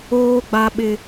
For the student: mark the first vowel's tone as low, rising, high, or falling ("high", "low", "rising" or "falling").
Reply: high